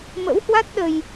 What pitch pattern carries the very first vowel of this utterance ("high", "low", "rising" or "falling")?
rising